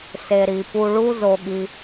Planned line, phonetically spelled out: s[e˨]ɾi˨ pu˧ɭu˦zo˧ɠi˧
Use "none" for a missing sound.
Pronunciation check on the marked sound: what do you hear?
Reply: e˨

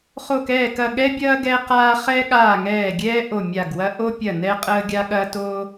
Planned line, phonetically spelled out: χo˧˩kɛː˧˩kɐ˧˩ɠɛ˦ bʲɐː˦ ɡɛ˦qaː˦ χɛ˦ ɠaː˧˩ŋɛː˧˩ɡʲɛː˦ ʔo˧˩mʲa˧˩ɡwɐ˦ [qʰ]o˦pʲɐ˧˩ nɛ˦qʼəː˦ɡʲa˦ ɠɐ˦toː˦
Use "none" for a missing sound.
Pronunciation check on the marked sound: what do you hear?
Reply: ʔ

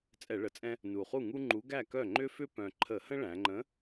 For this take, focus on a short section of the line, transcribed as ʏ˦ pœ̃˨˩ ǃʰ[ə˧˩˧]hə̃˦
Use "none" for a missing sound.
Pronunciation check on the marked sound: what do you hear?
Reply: ə˧˩˧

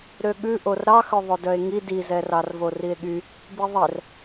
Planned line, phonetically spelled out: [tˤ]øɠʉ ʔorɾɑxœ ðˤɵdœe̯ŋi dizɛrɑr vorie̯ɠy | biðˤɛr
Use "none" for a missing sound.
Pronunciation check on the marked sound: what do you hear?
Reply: ɾ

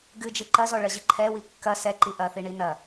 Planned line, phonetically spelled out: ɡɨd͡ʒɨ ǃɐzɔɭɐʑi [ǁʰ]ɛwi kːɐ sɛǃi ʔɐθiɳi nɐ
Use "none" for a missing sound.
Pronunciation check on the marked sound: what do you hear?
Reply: ǃʰ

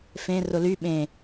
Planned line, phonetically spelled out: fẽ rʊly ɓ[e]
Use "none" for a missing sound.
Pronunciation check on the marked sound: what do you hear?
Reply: ẽ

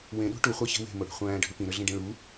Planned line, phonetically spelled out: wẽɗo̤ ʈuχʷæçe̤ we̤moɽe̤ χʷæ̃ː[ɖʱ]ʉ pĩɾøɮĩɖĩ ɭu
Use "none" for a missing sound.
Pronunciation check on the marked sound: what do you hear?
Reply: ɖʱ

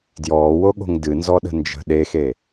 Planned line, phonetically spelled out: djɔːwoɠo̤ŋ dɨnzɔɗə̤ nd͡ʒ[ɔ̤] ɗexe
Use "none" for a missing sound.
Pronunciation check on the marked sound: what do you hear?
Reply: ə̤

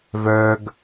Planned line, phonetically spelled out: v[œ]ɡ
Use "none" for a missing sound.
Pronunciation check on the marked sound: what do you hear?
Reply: œ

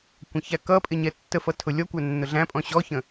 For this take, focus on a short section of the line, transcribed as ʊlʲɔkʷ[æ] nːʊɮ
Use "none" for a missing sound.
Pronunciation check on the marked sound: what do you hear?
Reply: æ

